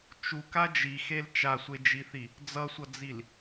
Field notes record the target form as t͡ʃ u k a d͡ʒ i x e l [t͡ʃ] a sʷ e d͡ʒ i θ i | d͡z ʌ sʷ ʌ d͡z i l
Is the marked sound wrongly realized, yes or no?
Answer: no